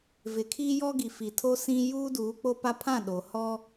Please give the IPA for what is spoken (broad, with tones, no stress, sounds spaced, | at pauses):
v ɪ˨ kʰ iː˦ j ɔ˦ ɡ i˨ f i˨ tʰ o˦ s ĩ˦ j uː˦ d uː˨˦ k͡p o˦ p a˦ pʰ ã˦˨ ɗ o˨ h ɔ˦